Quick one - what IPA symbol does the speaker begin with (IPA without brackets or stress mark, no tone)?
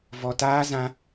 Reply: v